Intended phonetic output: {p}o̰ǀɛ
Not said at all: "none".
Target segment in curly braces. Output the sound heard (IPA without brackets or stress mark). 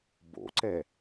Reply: b